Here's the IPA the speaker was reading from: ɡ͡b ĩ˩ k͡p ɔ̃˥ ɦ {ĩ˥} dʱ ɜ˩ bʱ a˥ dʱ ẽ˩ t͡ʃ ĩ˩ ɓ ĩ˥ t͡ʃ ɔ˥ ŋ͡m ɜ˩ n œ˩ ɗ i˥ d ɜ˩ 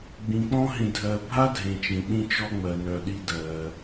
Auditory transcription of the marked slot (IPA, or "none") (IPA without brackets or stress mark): ĩ˩